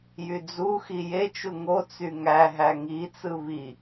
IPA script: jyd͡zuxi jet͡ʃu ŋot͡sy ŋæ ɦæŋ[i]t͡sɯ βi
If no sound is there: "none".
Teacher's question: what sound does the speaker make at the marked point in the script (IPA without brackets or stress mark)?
i